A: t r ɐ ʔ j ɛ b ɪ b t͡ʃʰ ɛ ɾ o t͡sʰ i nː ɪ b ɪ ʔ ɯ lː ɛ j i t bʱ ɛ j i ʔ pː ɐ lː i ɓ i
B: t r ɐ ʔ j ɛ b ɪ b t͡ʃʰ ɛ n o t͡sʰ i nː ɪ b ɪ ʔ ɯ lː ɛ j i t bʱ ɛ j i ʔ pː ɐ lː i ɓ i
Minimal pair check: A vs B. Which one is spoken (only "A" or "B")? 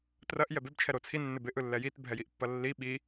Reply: A